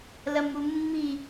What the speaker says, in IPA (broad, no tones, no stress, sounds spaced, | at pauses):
l ɐ m u mː i